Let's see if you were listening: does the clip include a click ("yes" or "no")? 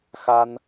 no